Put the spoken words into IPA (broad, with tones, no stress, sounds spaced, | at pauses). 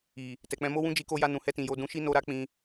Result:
i˨ | t ɛ˨ k͡p ɛ̃˧ m o˦ w ũ˦ d͡ʒ i˧ k o˧ j a˧ n ũ˨ h ɛ˧ t ĩ˨ j o˧ d ũ˧ ʃ i˦ n o˧ ɾ a˦ k͡p ĩ˧